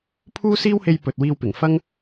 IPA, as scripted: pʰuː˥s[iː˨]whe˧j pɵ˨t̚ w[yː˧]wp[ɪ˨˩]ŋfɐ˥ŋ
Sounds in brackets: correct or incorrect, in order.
incorrect: iː˥, incorrect: iː˧, correct

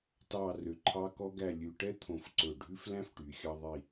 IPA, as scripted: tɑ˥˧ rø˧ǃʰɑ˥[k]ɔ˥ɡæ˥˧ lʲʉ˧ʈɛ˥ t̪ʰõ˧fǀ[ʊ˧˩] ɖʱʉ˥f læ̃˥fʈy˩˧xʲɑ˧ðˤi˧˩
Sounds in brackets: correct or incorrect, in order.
correct, incorrect: ɵ˧˩

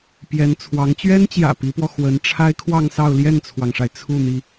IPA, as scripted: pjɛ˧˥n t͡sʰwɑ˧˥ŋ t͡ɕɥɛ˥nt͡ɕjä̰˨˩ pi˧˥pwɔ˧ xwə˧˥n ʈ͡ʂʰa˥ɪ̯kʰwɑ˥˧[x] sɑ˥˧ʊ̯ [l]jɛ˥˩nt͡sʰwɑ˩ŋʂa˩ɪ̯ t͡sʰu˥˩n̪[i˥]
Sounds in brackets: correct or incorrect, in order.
incorrect: ŋ, correct, incorrect: i˩

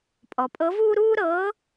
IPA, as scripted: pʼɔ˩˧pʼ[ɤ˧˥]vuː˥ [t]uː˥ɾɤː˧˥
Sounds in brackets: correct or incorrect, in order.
correct, incorrect: ɾ

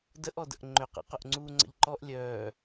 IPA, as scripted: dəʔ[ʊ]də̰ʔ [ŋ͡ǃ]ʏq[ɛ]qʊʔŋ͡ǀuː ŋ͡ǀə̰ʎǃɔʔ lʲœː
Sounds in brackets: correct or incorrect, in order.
incorrect: ɔ, correct, incorrect: ɛ̰

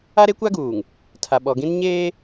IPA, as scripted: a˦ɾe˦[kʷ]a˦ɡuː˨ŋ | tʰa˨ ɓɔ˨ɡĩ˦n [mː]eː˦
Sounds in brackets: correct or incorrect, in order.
correct, incorrect: ɲ

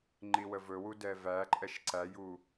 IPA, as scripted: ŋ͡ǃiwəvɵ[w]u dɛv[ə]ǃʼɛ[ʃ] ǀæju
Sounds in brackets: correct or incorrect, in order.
correct, incorrect: æ, correct

